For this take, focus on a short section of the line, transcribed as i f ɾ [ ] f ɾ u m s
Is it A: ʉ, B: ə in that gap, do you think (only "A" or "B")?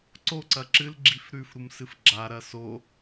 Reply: A